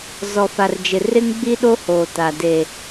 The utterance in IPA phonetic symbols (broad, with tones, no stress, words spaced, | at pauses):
zɔ˨fa˨rd͡ʒɪ˨ rɪ˦ŋɡ͡bi˦ɗo˦ hoː˨ ta˨deː˨